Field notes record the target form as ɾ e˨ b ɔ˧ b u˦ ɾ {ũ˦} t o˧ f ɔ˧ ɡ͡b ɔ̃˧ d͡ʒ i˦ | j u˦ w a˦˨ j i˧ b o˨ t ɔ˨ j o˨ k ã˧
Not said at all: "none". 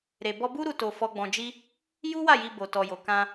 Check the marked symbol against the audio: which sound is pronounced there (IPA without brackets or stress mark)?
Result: u˦